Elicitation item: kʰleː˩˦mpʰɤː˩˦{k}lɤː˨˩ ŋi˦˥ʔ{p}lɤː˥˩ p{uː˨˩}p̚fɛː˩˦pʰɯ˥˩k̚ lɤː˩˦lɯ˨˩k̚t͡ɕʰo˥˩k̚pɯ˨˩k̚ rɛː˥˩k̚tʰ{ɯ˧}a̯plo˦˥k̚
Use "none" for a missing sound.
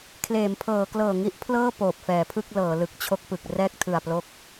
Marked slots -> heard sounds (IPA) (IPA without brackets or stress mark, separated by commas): k, pʰ, oː˨˩, ɯ˨˩